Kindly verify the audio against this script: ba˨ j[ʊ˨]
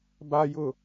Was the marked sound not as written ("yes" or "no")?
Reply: no